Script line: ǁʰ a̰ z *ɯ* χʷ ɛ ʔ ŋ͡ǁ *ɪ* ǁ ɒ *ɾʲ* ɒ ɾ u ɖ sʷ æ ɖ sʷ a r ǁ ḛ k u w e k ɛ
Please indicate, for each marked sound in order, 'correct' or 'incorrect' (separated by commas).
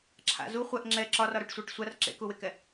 incorrect, incorrect, incorrect